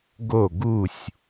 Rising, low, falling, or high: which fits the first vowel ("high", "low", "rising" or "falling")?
falling